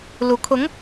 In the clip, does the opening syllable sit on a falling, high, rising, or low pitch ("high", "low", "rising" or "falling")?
rising